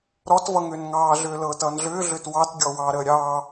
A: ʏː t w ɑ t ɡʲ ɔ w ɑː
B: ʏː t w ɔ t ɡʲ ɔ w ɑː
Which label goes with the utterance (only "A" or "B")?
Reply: A